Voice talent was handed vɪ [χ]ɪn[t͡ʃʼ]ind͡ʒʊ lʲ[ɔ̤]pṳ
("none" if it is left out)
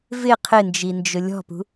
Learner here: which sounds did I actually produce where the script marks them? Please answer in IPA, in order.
qʰ, d͡ʒ, ɔ̤

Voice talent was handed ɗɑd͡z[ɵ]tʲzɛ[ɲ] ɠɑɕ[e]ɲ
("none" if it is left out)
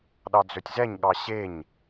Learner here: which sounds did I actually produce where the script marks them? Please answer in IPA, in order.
ɵ, ɲ, e

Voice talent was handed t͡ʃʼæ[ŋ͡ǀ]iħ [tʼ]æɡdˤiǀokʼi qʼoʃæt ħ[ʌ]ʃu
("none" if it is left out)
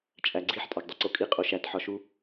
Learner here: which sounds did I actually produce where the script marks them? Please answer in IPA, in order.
ɡ͡ǀ, tʼ, ɒ

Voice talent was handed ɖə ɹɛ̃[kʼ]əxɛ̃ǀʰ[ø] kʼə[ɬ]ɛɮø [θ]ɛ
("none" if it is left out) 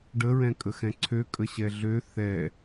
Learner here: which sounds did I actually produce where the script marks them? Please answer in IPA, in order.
kʼ, ø, ɕ, θ

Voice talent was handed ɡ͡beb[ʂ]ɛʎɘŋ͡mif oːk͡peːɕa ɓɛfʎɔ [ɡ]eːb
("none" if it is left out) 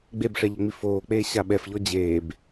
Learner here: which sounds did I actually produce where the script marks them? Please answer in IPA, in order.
ʂ, d͡ʑ

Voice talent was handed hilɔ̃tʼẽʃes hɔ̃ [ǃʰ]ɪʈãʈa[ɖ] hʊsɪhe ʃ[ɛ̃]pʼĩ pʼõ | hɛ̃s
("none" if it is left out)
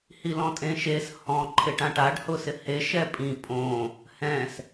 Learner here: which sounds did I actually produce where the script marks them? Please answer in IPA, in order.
ǃʰ, ɖ, ɛ

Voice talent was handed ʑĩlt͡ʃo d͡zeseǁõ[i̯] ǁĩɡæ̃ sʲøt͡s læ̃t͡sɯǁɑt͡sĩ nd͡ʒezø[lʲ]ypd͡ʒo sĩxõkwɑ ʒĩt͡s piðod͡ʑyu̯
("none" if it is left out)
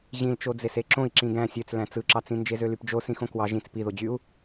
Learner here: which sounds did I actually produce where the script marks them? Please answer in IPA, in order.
i̯, l

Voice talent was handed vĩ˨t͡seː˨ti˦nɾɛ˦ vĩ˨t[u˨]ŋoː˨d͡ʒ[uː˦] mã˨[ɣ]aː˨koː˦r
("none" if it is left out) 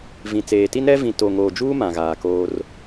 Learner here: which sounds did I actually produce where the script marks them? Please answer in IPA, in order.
o˨, uː˦, ɣ

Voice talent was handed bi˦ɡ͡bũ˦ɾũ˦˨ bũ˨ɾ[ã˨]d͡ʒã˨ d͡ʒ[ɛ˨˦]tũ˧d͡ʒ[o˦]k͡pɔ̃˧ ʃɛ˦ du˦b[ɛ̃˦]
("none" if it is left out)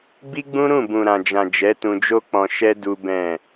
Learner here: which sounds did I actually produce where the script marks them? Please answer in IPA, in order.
ã˨, ɛ˨˦, o˦, ɛ̃˦˨

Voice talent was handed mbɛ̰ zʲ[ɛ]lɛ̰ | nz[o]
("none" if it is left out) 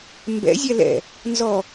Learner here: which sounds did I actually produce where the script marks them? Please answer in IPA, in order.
ɛ, ɔ

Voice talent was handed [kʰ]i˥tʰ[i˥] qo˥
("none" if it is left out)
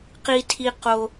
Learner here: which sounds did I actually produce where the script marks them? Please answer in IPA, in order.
q, i˥

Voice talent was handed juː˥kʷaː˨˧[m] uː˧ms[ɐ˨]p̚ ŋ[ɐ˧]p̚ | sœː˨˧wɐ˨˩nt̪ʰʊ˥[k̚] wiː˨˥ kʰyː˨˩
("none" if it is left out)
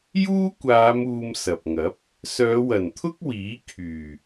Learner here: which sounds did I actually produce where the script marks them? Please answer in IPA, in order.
m, ɐ˨, ɐ˨˥, k̚

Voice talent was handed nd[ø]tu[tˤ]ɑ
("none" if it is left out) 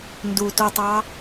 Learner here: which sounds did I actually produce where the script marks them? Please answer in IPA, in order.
u, tˤ

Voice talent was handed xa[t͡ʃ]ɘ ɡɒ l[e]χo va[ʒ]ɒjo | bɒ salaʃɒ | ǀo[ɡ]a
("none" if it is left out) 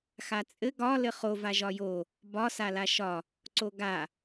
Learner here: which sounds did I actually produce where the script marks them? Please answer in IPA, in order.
t͡sʼ, ɘ, ʒ, ɡ

